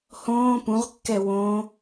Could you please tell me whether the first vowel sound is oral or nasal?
nasal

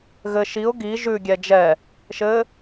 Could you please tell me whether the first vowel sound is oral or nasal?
oral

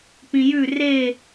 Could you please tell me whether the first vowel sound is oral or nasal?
nasal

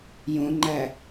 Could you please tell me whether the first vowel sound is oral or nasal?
nasal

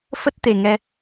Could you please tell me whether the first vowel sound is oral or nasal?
oral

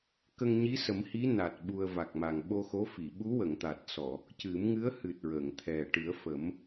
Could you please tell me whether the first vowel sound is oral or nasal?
oral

